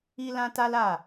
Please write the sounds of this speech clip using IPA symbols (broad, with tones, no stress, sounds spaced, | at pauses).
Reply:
i˦ l ã˦ t a˦ l a˦˨